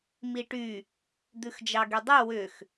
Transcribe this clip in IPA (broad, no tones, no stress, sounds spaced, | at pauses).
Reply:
m i ʈ y | d̪ ʉ x d͡ʒ ɑ ɡ y dˤ y w ʏ x